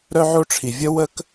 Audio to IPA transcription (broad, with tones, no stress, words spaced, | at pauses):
ɾœ˥ʕo˥ʈ͡ʂʰi˩ vʲə˥wə˥k